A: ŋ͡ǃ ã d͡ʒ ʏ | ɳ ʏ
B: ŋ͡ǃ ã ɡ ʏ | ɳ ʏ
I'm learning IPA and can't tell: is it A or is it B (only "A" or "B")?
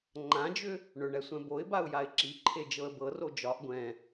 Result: A